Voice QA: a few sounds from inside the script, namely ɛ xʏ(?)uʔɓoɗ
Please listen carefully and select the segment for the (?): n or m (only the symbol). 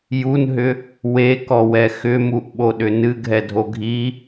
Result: m